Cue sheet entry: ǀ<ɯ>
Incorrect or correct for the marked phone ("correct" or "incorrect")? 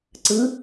correct